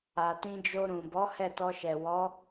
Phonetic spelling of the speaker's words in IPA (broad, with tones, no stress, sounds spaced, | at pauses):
a˨ t ĩ˧ d͡ʒ o˧ ɾ ũ˨ b ɔ˨˦ h ɛ˦˨ t ɔ˧ ʃ ɛ˨ w ɔ˨˦